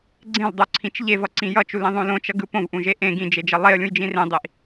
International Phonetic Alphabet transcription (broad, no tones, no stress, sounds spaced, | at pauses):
ɡ͡ǀ ẽ l dˤ o ǀʰ ĩ t͡ʃ ʎ e v ʌ ǀ ĩ j ʌ t͡ʃ u l ĩ ðˤ õ l õ t͡ʃ ʌ ɡ ɯ p õ v ʔ ũ ʒ e ʔ ẽ ɡ ĩ d͡ʒ e d͡ʒ ʌ lˠ e ə̯ lʲ ũ j d͡ʒ ĩ r ẽ dˤ i ʔ